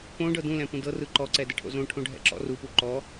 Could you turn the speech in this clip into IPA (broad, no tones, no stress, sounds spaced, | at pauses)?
p õ ɖ ɤ d ũ l ɛ̃ p ũ d ɤ r ɯ ǃ ɔ ǀ ɛ d ɛ ʈʰ o̰ z õ ʈʰ õ ɖʱ ɛ̰ ǁ ɔ̰ r u p u ǃ ɔ